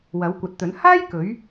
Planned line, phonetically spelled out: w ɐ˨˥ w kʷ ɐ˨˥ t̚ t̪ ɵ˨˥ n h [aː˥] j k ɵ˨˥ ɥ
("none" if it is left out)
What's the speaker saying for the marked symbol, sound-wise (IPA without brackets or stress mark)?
aː˥